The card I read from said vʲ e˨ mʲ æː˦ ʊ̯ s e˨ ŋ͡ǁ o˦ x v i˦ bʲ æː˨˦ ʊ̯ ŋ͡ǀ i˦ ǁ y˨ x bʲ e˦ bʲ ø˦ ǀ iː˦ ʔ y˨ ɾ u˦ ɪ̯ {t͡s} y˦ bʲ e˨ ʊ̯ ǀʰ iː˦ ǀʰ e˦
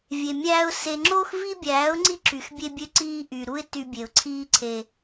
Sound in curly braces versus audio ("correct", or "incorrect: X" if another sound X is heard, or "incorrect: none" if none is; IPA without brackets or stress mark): incorrect: t